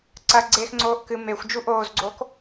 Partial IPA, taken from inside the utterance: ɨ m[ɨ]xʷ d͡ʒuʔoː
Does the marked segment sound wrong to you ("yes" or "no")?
yes